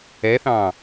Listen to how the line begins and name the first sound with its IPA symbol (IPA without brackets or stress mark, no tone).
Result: ɛ